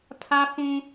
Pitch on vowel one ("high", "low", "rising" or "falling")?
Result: high